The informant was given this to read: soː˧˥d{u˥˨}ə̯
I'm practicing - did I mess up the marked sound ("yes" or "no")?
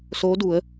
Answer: yes